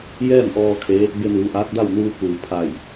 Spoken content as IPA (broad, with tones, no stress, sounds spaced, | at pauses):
j ɛː˥˨ m ʔ ɔː˧ kʰ e˧˥ | b e˧ n uː˩˧ ʔ aː˧˥ t̚ d a˥˨ w n uː˧ k uː˩ pʰ a˧˩ j